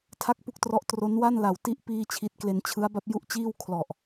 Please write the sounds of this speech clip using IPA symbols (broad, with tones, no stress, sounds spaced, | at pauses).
tʰ a˥˩ k̚ p u˥˩ k̚ t r ɔ˦˥ ʔ t r o˦˥ n w a˥˩ n l a˨˩ w t i˦˥ ʔ p iː˧ t͡ɕʰ i˨˩ t̚ k l e˧ n t͡ɕʰ ɯ˦˥ a̯ b a˥˩ p̚ j u˥˩ ʔ t͡ɕ iː˥˩ w kʰ l ɔ˨˩ ʔ